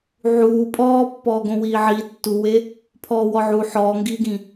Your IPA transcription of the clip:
ʕ uː pʼ ɔː pː ɔː ɡ õ w iː ʕ iː tː u w e | pʰ ɔː w ɔ ʕ u ħ ɔː ŋ ɡ iː ɡ ĩ

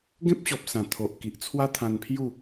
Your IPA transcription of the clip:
ɡ ẽ˦ p̚ ɕ ɔ˨ p̚ s ã˨˩ t̪ʰ o˨ ʔ k i˨ ʔ t͡sʰ w a˦ t̪ʰ ã˧ n pʰ j u˥˧

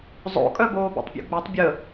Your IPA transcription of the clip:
zˤ o̰ kʼ œ b oː b ḛ tˤ pʲ ṵ ɡ͡b œ tˤ bʲ ə

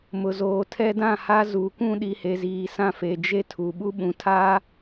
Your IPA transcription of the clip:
m ʊ˨ z oː˨ tʰ ɛ˦ d ã˦˨ h a˦ z u˨ kʷ ũ˦ ɗ i˨ h e˨ z iː˨ s ã˦ f e˨ d͡ʒ e˦ tʰ u˨ ɓ u˦ ɓ ũ˨˦ tʰ a˦

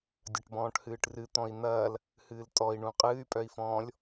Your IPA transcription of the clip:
dʲ ɐ ʈ b ɔ̃ː ʈ h ɨː ʈ r ɨ t̪ ɔ̃ i̯ n̪ ɐː l | h ɨː l tʼ ɔ i̯ ɳ ũ qʼ ɨː y̯ pʼ œ i̯ f ɔ̃ː lʲ

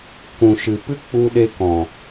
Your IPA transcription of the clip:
k ũ˨ ʃ ɨ˨ p ɨ˦ k͡p u˧ ɗ e˧ k ɔ̃˨

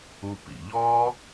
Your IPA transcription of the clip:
u˧ p ḭ˨ ʎ ɔ˦

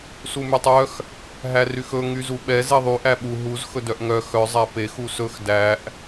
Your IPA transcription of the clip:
s u m y tˤ œ x | ɦ æ r y x ɵ ŋ y z u ɓ ɛ z e ðˤ y ʔ æ ɓ u ɦ u z x ɵ d œ ʔ ŋ œ x œ zˤ æ p e x u s ɵ x d æ ʔ

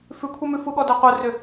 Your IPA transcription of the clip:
f ʉ kʷʰ e m ʉ f u ɠ ɔ d ɛ qʷ œ r ʏ

